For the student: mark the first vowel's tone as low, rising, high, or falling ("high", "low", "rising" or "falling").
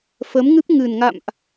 rising